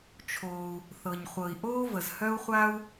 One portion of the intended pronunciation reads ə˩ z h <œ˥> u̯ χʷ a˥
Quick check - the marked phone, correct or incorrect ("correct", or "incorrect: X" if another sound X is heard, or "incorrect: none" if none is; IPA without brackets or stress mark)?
correct